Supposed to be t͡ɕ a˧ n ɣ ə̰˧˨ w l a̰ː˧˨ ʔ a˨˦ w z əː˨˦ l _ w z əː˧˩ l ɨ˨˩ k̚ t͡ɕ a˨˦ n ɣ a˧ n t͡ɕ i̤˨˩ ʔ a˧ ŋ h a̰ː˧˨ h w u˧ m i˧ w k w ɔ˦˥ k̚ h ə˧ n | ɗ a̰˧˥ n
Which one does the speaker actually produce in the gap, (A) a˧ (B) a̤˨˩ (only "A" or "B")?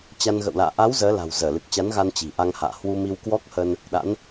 B